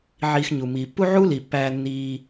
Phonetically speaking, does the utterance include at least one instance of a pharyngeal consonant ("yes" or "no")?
yes